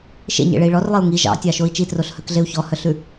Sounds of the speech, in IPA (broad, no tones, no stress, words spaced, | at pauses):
ʃḛɲḛɭei̯ ɭɔrlˠiu̯ ŋi ʒɑ̰tʲɑʃoi̯ t͡ʃitroɬhœkɮeu̯ çɔhœɬʉ